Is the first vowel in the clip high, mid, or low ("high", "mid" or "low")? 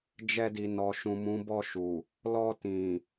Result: mid